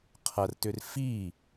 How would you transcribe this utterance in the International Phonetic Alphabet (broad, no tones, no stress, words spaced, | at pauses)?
qʰɐrtʏr fi